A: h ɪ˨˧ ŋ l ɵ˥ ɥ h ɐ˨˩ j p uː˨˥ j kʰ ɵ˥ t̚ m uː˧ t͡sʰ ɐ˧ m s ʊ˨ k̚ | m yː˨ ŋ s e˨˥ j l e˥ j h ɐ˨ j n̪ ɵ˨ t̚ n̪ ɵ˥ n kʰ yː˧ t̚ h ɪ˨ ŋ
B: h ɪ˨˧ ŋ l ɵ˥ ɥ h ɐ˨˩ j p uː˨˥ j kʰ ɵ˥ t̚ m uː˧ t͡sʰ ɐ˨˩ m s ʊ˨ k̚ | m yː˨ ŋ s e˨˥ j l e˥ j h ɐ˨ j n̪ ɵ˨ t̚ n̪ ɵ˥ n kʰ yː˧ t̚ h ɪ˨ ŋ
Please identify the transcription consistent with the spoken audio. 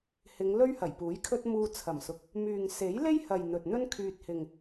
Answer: B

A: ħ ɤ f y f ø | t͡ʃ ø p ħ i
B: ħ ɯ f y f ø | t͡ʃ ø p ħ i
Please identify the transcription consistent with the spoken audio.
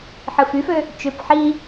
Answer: B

